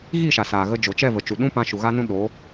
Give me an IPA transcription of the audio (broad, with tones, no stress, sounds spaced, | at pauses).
ɣ i˦˨ ʃ a˨ s aː˨ ɣ ə˧ d͡ʒ o˨ t͡ʃ ɛ˦˨ v ə˨ t͡ʃ u˨ ɗ ũ˦ p ã˧ ʃ u˨ ɣ a˦ n ũ˦ ɗ oː˨˦